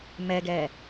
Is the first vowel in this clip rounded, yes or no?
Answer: no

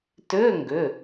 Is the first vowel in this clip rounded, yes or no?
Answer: yes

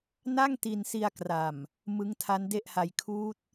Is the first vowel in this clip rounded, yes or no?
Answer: no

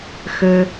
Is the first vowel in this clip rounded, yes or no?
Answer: no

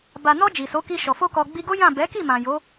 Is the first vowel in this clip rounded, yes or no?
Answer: no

